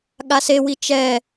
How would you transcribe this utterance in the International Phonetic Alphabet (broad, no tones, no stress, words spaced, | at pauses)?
ɠasewi t͡ʃɛ